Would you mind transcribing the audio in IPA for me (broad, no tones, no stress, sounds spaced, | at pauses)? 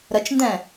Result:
ɾ ə t͡ʃ n d ɛ̃